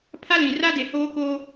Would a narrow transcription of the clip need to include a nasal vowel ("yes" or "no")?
yes